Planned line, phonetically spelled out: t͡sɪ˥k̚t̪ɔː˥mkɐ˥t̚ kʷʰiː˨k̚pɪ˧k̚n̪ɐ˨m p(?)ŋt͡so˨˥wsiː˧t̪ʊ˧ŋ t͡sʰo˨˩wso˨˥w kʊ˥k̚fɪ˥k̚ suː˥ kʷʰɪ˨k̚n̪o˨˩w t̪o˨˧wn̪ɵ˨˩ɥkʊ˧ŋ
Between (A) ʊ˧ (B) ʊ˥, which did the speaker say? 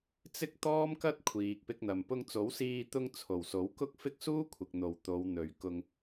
A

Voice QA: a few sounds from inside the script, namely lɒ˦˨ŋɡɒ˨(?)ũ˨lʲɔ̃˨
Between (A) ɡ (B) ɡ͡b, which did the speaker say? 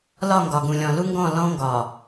A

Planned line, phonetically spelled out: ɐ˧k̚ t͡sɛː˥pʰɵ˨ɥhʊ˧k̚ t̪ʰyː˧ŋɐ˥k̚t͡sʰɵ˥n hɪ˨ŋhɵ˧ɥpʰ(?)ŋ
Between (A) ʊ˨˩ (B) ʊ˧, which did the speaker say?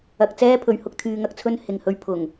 A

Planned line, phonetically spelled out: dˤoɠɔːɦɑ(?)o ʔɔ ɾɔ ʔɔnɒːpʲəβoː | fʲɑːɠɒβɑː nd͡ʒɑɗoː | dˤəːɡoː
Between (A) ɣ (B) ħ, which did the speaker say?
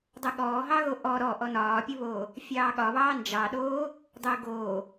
A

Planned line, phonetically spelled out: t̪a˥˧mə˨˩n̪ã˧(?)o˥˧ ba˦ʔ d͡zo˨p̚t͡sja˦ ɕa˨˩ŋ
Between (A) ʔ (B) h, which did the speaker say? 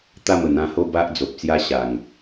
B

